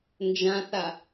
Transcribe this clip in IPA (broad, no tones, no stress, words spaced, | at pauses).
nd͡ʒãθa